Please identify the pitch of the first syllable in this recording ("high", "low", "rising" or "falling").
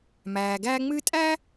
low